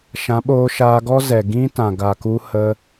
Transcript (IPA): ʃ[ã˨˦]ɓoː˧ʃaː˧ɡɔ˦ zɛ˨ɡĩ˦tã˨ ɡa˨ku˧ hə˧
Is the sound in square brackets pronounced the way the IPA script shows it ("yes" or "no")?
yes